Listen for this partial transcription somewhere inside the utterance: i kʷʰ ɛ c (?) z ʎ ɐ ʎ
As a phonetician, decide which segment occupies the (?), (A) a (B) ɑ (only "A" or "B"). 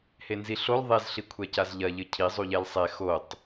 A